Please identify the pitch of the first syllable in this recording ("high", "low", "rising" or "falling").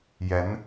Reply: rising